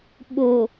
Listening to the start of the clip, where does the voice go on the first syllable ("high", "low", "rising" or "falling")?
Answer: low